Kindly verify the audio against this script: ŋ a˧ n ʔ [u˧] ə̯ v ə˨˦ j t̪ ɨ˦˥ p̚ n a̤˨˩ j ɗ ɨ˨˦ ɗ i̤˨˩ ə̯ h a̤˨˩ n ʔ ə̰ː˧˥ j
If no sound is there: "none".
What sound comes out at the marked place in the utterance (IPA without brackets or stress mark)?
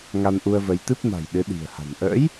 u˧